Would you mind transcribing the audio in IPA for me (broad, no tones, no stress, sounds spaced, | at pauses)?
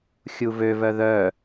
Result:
xʲ u v ø v œ ð œ